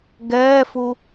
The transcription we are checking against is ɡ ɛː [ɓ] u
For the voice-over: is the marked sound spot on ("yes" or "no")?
no